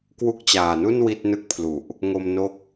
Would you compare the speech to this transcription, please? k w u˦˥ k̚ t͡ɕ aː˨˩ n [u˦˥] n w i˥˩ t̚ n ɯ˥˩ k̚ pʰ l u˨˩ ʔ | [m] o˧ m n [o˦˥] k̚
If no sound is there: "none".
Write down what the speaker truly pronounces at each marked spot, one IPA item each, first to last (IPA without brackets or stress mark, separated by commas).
u˥˩, ŋ, o˦˥